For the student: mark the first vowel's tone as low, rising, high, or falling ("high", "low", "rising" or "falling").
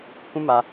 high